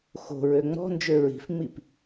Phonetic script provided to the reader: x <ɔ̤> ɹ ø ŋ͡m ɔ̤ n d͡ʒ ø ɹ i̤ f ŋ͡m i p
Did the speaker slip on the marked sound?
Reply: yes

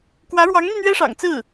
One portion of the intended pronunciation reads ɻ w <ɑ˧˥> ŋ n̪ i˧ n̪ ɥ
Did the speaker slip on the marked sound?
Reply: no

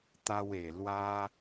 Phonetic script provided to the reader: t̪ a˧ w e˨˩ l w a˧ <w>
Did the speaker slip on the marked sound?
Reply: yes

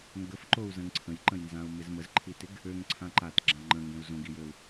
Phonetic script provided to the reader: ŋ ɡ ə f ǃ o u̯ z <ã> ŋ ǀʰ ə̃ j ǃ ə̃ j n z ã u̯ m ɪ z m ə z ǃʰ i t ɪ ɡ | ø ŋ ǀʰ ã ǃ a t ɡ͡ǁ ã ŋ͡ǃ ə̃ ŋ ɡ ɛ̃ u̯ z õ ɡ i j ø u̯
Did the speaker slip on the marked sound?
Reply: yes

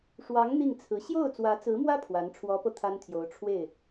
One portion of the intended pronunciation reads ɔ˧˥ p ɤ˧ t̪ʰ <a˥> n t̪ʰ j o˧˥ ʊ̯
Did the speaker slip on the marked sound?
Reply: no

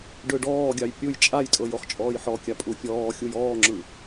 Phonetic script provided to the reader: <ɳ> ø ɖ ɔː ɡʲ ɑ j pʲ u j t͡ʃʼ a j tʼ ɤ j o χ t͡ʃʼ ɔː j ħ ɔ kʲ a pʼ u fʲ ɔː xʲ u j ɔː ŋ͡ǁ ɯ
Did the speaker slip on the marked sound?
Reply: yes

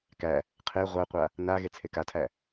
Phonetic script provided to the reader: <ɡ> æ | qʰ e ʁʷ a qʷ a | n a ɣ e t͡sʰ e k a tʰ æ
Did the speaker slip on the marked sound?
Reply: yes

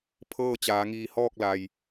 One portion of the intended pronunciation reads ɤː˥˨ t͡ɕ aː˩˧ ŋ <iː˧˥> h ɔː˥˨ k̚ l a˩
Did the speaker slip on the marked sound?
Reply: yes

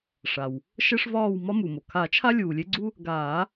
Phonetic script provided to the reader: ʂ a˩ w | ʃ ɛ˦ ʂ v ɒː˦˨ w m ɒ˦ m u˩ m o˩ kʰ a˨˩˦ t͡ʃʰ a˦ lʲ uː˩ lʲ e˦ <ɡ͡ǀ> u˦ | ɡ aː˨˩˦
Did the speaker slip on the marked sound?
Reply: no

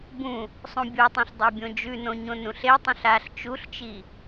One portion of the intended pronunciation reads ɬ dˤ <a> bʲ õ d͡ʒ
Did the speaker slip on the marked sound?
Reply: no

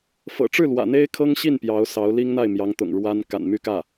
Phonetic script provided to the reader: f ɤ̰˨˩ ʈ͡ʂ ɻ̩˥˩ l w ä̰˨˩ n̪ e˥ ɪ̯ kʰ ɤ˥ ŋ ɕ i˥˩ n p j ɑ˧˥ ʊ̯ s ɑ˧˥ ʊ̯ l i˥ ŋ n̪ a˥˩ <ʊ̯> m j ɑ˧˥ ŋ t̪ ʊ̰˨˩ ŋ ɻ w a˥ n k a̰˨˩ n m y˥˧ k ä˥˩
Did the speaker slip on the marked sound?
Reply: yes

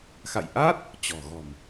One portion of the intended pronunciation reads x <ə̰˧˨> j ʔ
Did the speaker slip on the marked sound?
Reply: yes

